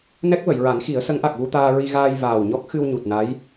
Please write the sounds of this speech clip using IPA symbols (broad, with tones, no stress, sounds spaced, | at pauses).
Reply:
n ɛ˦˥ k̚ v ə˨˩˨ j ɹ a˨˩˦ n x i˨˩˦ ə̯ s ə˧˥ ŋ ʔ a˨˩ k̚ v u˧ t̪ aː˧ ɹ i˧ ɣ aː˧ j v aː˨˩ w ɲ ɔ˦˥ k̚ x ɨ˧ w ɲ u˨˩ t̚ n a˧˥ j